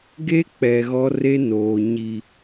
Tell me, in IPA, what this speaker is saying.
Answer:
ɡ e˦ k͡p ɛ˨ ɣ ɔ˦ r e˦ n oː˨ ɲ i˨

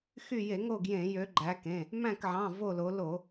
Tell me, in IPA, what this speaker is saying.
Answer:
x y˦˨ j e˧˩˧ ŋ o˦˨ ɡ j ẽ˧˩˧ j ø˨˦ ɡ͡ǃ æ˨˦ k ẽ˩˧˩ | m æ̃˦˨ k ʕ ɑ̃˩˧˩ v o˦˨ l o˨˦ l o˧˩˧

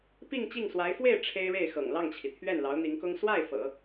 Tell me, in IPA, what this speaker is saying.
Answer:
p i˥˧ ŋ t͡ɕ i˥˩ ŋ s w a˧˥ ɪ̯ f w e˥˩ ɪ̯ ʈ͡ʂʰ e˥ ɪ̯ ɻ e˥˩ ɪ̯ x ɤ̰˨˩ ŋ l ɑ˥˩ ŋ t͡ɕʰ i˩ t̪ʰ ɥ ɛ˥˩ n l ɑ˧˥ ʊ̯ n̪ i˧˥ ŋ k ʊ˥ ŋ s w a˥˩ ɪ̯ f ɤ̰˨˩˦

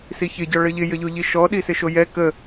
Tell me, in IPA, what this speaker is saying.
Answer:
s i ç ɪ ɟ ɔ ɭ ə ʎ ɪ j ə ʎ o ʎ i ʃ ɔ ɗ i s ɪ ʃ o j ɛ k ə

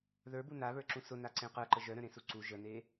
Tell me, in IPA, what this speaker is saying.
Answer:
ð ə˞ b u n a β ə˞ ǁ ũ s ʊ n a ǀ ẽ q ə˞ ǃ ə ʒ œ ɾ œ̃ ɾ ẽ s u ǀ u ʒ ə n e

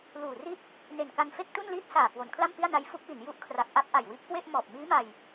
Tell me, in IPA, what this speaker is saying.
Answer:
l uː˨˩ r i˥˩ t̚ | n e˨˩ n k a˧ n f e˥˩ k̚ t u˥˩ n l iː˥˩ t̚ s aː˨˩ k w o˩˦ n kʰ l a˥˩ m p i˥˩ a̯ n a˦˥ j f u˦˥ k̚ w i˩˦ n j u˦˥ ʔ kʰ r a˨˩ k̚ ʔ a˥˩ p̚ ʔ a˨˩ j w i˦˥ ʔ k w e˥˩ ʔ m ɔː˨˩ p̚ m iː˦˥ m a˧ j

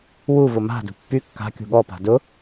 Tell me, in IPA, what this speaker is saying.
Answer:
w u v ʊ m a̤ d ṳ pː y kː a̤ kʲ ṳ ɠ ɔ p a̤ d ʊ

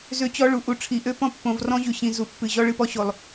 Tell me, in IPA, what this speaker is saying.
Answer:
z ø˦ t͡ɕ ɔ˦ ɭ u˨ ʔ u˨ ʈ͡ʂʰ i˨ ʔ ø˦ p ɔ̃˦ pː õ˨ v r ɔ̃˦ ʑ ʉ˨ ɕ ĩ˨ z u˨ pː ɨ˨ ʑ ɔ˦ ɭ ɨ˦˨ p ɔ˦ ɕ o˨ lˠ

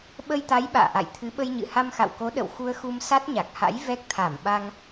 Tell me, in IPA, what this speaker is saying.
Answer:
ɓ ə˧ j t̪ a˨˦ j ɓ a̰ː˧˨ ʔ a̰˧˨ j t̪ʰ ɨ˨˦ ɓ ə˧ j ɲ ɨ̰˧˨ h a˧ m x a̰˧˨ w k o˨˦ ɗ ə̰˧˨ w x u˧ ə̯ x u˧ m s a˦˥ t̚ ɲ a˨˩ k̚ h a̰˧˥ j v ɛ˦˥ k̚ t̪ʰ a˧˩ m ɓ a˧ ŋ

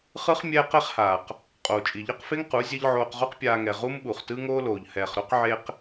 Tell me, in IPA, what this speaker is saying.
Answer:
χ ɯ˦ χ mʲ ɛː˦ q e˦ χ h aː˨ q | qʼ oː˨ t͡ʃʼ i˨ ʎ ɤ˦ q f e˦ ŋ q u˨˦ zʲ ɛ˦ ʎ ʕ oː˧ q ʁ u˦ q pʲ aː˧ ŋ ɛ˨ ʁ u˦ m ɓ u˨ χ t ɯ˦ ŋ oː˦ l oː˨ ʎ h ɛː˨ χ ɾ o˦ q ʕ e˦ q

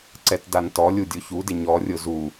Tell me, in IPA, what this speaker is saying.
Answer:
ǀ ɛ t d a n t ɔ lʲ u dʲ o ç u d ɪ ɲ ɔ rʲ ʊ z u

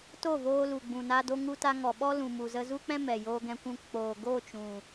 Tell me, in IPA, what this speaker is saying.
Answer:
t o˦˨ v oː˧ l u˨ ɡ͡b ũ˨ n a˧ d o˧ ŋ u˧ t a˧ ŋ ɔ˨ ɓ ɔ˦ l ũ˨ m u˨ z ə˧ z u˦ k͡p ɛ̃˦ m ɛ˨ j oː˧ ɡ ɛ̃˧ kʷ ũ˧ k͡p oː˨ ɡ o˦˨ t͡ʃ ũ˨

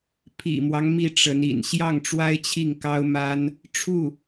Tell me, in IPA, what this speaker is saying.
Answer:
pʰ ḭ˨˩ m w ɑ˦ ŋ m i˥˩ ʈ͡ʂ ə˧˥ n ḭ˨˩ n ɕ j ɑ˥˩ ŋ ʈ͡ʂ w a˥ ɪ̯ t͡ɕʰ i˥˩ ŋ k ɑ˥ ʊ̯ m a˥ n | ʈ͡ʂʰ u˥˩

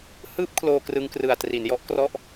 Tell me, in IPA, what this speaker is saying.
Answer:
h ɯː˦˥ p̚ kʰ l oː˧ k r ɯ˧ ŋ k r ɯ˨˩ a̯ t r i˩˦ n j ɔ˦˥ ʔ k r ɔ˦˥ ʔ

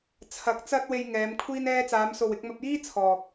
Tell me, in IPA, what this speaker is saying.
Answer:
t͡sʰ ɐ˨˥ k̚ t͡s ɐ˧ t̚ w e˧ j ŋ ɛː˨˧ m kʷʰ iː˧ n ɛː˧ t͡s aː˨˧ m s o˨ w ɪ˨˥ k̚ m ɐ˧ p̚ j iː˥ t͡sʰ ɔː˨ k̚

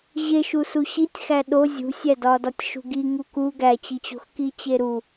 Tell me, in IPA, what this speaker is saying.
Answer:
ʑ e ʃ u s u ɕ i tʲ x æ ɗ o zʲ ṳ sʲ æ d ɒ d ɒ tʲ ʃ ṳ ɡ i ŋ u k u ɡ æ t͡ɕ i t͡ɕ o̤ x k i t͡ɕ e ɾ u

